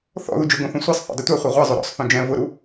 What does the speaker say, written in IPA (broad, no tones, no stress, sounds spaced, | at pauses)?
θ ɔ̰ ð u d͡ʒ ʊ ɡ õ θ õ sʷ i sˤ θ ṵ dˤ i tʷ a χʷ ɛ ʁʷ ɛ zˤ o ɾ ɔ̰ sˤ θ õ d͡ʒ ɛ̃ v ʊ ɾ u